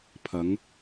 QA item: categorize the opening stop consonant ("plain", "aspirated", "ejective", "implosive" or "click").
aspirated